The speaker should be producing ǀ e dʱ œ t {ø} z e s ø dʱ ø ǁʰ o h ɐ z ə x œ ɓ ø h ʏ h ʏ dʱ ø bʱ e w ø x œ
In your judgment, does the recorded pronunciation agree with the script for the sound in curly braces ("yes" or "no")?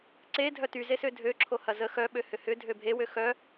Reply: no